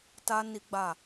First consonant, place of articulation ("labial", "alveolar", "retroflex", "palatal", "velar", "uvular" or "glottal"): alveolar